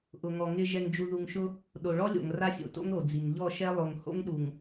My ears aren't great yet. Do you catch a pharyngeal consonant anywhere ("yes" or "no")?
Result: no